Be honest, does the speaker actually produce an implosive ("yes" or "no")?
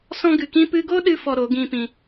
yes